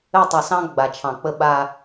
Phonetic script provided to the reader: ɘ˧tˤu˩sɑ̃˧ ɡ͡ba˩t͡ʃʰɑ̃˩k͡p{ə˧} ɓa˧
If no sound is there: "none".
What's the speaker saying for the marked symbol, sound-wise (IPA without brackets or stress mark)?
ə˧